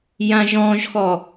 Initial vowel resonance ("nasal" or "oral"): nasal